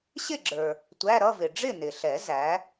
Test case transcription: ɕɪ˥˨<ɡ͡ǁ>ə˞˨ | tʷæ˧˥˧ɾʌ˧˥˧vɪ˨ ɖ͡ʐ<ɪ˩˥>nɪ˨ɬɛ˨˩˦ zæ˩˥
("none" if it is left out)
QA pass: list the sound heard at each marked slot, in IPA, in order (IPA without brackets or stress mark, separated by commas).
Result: ɡ͡ǁ, ɪ˥˨